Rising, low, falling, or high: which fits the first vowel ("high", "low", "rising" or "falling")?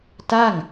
falling